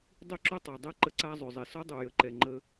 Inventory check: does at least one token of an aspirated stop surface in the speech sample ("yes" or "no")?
no